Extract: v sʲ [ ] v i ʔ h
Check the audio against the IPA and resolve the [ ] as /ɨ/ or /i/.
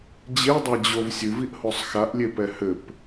ɨ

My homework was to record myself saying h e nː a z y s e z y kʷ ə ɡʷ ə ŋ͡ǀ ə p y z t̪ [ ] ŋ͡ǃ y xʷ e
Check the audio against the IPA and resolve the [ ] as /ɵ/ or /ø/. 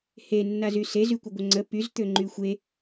ø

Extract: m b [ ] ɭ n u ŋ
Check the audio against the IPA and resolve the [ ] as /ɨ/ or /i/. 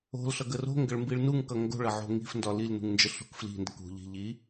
i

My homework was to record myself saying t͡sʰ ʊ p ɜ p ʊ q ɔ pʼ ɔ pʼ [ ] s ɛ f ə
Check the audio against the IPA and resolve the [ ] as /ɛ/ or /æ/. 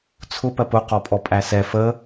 æ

